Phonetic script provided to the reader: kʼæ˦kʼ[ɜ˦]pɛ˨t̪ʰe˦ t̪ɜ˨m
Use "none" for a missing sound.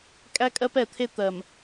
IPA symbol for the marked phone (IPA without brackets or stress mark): ɜ˦